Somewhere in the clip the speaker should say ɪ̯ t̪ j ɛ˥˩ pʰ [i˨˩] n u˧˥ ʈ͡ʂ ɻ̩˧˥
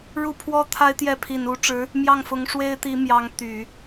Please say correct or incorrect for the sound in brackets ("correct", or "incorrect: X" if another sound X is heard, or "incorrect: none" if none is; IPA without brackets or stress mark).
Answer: correct